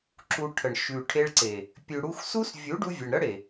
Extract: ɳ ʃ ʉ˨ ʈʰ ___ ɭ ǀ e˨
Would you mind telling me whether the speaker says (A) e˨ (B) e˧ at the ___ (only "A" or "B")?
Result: B